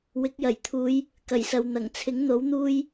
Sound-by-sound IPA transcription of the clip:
w ɪ˨˥ k̚ j ɐ˨˩ j t̪ʰ uː˨˧ j | k ɐ˨˩ j s ɐ˨ w n̪ ɐ˨˩ ŋ t͡sʰ ɪ˨˥ ŋ n̪ o˨˥ w n̪ uː˧ j

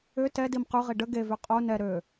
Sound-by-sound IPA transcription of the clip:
ʏ t ɛ d i m q y ʁ i ɖ ə ɡ e v y qʼ o n ɛ ɾ ø

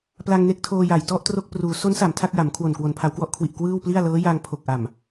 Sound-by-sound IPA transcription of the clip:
p l a˧ ŋ n e˦˥ k̚ tʰ oː˧ j a˨˩ j t ɔ˥˩ ʔ t r o˥˩ k̚ p r uː˩˦ s o˦˥ n s a˨˩ m tʰ a˥˩ k̚ j a˩˦ m kʰ w o˨˩ n k w o˩˦ n pʰ a˩˦ w k w ɔ˦˥ ʔ kʰ w i˨˩ ʔ k w ɯː˥˩ w p l i˥˩ a̯ l ɤː˦˥ j a˧ ŋ pʰ o˨˩ k̚ ʔ a˨˩ m

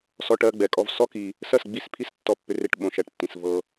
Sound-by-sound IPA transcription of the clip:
s ɔ˧ ʈ ɜ˧ ɡ͡b ɛ˨ kʼ ɔ˧ v s ɔ˦ k i˧ | s ɜ˦˨ s ɡ͡b i˦˨ s pʰ i˦ s tː ɔ˧ pː ʏ˧ r e˧ ʈ ɓ õ˨ ʃ æ˨ ʈ tː ĩ˨ s v ɤ˧

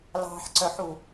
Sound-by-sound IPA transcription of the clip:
l ɑ̤ ħ ǀ œ ħ u

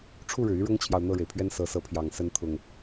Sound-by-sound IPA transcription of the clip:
ʈ͡ʂʰ u˥˨ ɻ ɻ̩˩ y˦ ɻ ʊ˦ ŋ t͡ɕʰ j ɑ˨ ʊ̯ n̪ ɤ˥˨ ɻ e˩ ɪ̯ pʰ ɥ ɛ˦ n s ɤ˨˦ s ɤ˨˦ pʰ j ɑ˨˩ ŋ s ə˨˦ n t̪ʰ ʊ˨˩ ŋ

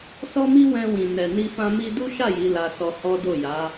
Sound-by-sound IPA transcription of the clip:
s ɔ˦ m i˦ w ɛ̃˧ w ĩ˨ n ɛ˨ n i˧ f ã˧ m i˧ d u˦ ʃ a˦˨ j i˨˦ l a˧ s ɔ˧ h ɔ˦ d o˦˨ j a˨˦

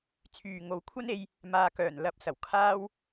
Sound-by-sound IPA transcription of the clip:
t͡sʰ yː˨ ŋ o˨˧ w kʷʰ ɐ˥ n e˧ j | m aː˨ k œː˨˩ n l ɐ˨˥ p̚ s ɐ˨˩ w kʰ aː˥ w

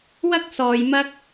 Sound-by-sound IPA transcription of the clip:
w ɐ˥ k̚ s ɔː˧ j m ɐ˥ k̚

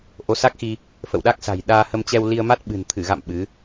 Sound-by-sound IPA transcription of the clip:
ʔ o˨˦ s a˦˥ k̚ x i˧ | f ə̰˧˨ w ɗ a˦˥ k̚ s a̤˨˩ j ɗ aː˧ h ə˧ m t͡ɕ ɛ˧ w l i˧ ə̯ m a˦˥ t̚ ɓ ɨ̤˨˩ n t̪ʰ ɨ˧˩ ɣ a̰˧˨ m ɓ ɨ˨˦

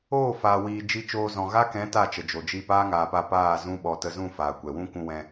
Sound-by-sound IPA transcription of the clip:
oː˦˨ f aː˨ w iː˨ d͡ʒ i˧ t͡ʃ oː˧ z ɔ̃˨ ɣ a˦ k ɛ̃˨˦ t a˦˨ t͡ʃ ə˨ d͡ʒ o˨ d͡ʒ iː˧ p aː˦ ŋ aː˨ p a˧ p aː˦˨ z ũ˦ ɓ ɔ˧ t ə˧ z ũ˦˨ f aː˨ kʷ ɛ˨ w ũ˦ kʷ ũ˧ w ɛ̃˧

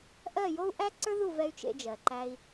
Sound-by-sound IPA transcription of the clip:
ʔ ɜ˦˨ j o˦ u̯ ʔ æ˦ ǀ ə˞˦ ð u˦˨ v ɛ˧ y̯ t͡ʃ ḛ˧ d͡ʒ ɜ˨ ǃ æ˧ i̯

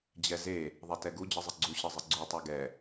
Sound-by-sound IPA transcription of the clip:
d͡ʑ ɛ z e | ðˤ ɛ t ɛ ɡ u d͡ʑ ɨ zˤ ɨ ɡ͡ǀ u ɕ ɨ zˤ ɨ ɡ͡ǀ u tˤ ɛ ɡ ɛ

